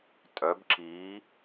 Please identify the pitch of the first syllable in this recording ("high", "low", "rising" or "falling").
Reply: rising